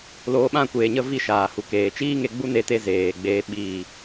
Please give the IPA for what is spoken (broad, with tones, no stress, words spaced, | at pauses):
loː˧ɓã˦˨kʷeː˨ɲə˦˨ vi˦˨ʃaː˨hu˨ keː˨t͡ʃiː˦ŋe˧ ɡ͡bu˦ne˧te˧ zeː˨ ɡ͡beː˧ ɓiː˨